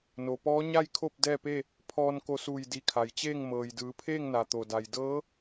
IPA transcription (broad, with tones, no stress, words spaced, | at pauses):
no˩pɔː˧˥ɲa˥˨jkʰo˥˨p̚ dɛː˥˨pe˥˨ | pʰɔː˧nko˧suː˧˩j di˧˩kʰa˩jt͡ɕeː˥˨ŋ mɤː˩j dɯː˩˧pʰeː˥˨ŋna˩t̪o˩ da˩j dɤː˧˥